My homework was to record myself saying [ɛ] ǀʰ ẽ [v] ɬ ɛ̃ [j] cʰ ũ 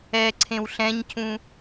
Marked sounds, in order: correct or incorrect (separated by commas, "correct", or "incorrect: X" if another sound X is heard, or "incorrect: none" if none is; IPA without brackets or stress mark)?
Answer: correct, incorrect: w, incorrect: ɲ